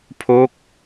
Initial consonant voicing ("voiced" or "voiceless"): voiceless